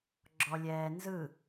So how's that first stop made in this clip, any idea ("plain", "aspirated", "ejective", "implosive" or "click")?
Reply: click